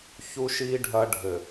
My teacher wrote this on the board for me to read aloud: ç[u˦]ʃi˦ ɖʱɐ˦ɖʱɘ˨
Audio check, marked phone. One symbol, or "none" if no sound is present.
u˦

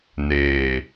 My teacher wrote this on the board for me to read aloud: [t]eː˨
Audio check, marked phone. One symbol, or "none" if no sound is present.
n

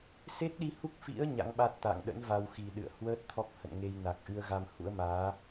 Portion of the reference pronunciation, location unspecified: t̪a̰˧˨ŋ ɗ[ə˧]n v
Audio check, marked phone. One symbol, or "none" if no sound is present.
ə̰˧˥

